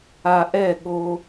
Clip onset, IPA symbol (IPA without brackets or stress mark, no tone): a